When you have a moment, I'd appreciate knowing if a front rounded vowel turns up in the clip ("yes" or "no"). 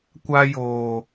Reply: no